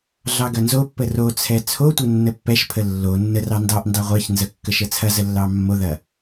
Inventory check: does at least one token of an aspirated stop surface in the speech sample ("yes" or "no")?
yes